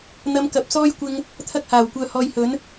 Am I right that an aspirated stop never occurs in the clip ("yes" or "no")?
no